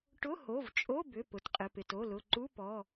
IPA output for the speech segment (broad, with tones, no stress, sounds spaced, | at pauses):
ʈ ʊ˧˥˧ h o˩˧˩ v t͡ʃʼ o˧˥˧ b ʏ˩˧˩ p ʊ˩˧˩ t qʼ ɪ˩˧˩ p ɪ˩˧˩ t o˩˧˩ l ʊ˩˧˩ ǃ u˧˥˧ p ɔ˩˧˩